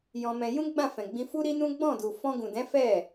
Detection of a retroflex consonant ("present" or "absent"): absent